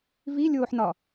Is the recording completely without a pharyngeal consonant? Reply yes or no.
no